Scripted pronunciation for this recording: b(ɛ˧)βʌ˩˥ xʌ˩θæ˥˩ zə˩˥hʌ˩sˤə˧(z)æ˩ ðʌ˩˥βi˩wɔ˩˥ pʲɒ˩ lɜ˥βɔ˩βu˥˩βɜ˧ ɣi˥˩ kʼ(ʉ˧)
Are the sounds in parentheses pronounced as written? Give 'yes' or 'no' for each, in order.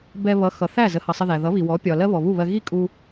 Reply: yes, no, no

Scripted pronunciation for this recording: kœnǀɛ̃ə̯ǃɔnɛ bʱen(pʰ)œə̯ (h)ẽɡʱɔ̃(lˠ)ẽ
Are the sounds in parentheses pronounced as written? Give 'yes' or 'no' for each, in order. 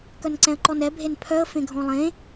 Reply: yes, no, yes

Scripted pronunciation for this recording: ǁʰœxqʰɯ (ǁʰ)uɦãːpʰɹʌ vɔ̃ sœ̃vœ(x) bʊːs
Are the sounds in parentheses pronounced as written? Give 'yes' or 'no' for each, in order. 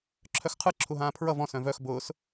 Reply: yes, yes

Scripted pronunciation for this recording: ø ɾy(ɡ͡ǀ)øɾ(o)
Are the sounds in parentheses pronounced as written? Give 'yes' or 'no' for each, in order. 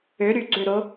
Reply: yes, yes

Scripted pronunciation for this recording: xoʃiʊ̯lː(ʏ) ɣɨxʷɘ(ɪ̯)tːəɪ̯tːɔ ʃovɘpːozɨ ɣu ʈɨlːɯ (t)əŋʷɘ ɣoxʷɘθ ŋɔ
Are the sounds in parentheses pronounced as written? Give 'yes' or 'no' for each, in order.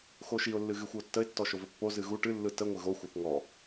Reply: no, no, yes

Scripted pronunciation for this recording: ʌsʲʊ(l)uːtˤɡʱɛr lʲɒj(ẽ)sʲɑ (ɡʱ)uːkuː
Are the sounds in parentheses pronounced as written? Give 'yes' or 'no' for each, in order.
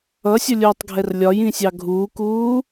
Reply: no, no, yes

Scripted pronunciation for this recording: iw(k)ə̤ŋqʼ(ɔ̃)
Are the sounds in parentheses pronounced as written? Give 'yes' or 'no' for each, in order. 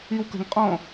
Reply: yes, yes

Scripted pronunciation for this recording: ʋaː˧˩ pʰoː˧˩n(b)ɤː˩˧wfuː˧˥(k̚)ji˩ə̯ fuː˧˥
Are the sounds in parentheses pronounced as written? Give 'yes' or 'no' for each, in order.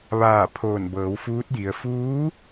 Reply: yes, no

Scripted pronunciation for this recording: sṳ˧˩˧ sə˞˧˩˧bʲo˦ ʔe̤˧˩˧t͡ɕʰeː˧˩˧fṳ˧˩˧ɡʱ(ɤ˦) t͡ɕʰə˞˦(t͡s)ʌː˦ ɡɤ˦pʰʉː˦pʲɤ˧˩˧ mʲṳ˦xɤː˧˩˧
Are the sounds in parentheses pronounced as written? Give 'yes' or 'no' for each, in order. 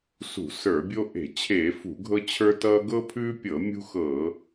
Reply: yes, no

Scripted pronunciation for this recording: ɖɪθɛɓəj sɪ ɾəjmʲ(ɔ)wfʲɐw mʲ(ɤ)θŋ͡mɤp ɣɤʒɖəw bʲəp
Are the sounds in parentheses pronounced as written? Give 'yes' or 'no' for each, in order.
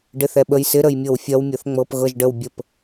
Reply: no, yes

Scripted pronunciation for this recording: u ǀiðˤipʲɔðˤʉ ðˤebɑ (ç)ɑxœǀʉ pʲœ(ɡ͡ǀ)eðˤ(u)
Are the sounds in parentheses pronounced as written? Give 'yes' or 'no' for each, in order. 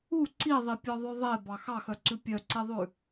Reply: no, no, no

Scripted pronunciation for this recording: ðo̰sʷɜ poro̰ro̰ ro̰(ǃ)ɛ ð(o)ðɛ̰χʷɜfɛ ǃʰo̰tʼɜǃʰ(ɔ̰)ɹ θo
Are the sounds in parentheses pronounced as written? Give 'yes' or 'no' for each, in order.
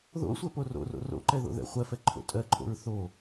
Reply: yes, no, no

